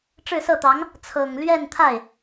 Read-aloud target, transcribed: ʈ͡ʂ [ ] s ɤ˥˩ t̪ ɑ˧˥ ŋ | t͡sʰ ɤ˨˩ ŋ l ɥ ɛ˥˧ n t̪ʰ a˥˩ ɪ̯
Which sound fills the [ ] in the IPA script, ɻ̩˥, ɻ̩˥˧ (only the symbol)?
ɻ̩˥˧